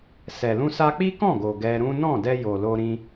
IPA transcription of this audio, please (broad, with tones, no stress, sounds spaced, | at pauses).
s ɛ˨ l ũ˧ s a˧ k͡p i˦ k ɔ̃˦˨ ɡ o˨ ɡ ɛ˧ ɾ ũ˦ n ɔ̃˦˨ d ɛ˧ j o˨ l o˧ ɾ ĩ˧